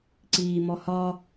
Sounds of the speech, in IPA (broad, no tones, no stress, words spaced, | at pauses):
ǀiːmɔhɒ